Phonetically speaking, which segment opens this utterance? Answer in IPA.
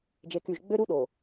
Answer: d͡ʒ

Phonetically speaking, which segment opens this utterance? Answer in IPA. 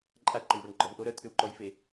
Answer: ǃʼ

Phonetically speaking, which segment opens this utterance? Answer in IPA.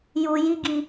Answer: j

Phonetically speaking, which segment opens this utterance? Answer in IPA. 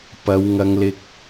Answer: p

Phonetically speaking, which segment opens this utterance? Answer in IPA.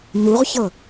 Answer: n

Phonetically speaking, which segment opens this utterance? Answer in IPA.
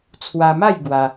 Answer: t͡sʰ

